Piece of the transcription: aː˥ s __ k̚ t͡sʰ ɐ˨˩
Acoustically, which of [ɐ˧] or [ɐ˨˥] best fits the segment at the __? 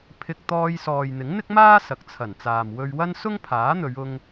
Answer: ɐ˨˥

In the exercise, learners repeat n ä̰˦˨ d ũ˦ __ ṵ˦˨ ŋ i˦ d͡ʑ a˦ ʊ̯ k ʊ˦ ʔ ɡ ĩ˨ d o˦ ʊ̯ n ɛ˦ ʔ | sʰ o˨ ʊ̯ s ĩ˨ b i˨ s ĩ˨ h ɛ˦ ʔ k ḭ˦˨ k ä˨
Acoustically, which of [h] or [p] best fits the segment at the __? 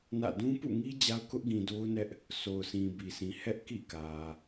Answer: p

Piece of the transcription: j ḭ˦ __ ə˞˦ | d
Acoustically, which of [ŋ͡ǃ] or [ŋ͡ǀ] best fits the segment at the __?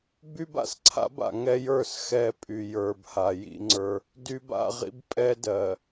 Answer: ŋ͡ǀ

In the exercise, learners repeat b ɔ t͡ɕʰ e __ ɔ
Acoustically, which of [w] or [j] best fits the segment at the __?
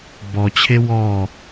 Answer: w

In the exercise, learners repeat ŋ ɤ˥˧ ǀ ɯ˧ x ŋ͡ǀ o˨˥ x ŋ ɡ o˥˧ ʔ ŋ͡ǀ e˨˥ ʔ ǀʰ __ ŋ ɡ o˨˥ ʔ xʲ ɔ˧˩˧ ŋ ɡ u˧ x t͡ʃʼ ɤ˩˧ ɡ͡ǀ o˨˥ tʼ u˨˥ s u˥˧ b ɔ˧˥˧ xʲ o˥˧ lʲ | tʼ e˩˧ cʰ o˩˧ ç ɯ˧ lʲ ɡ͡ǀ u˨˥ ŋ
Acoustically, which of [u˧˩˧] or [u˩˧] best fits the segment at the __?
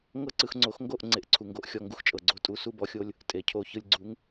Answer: u˩˧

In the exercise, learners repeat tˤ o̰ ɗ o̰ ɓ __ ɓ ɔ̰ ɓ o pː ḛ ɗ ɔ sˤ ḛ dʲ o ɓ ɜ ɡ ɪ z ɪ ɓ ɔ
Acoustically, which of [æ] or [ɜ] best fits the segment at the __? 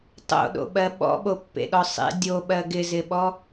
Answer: ɜ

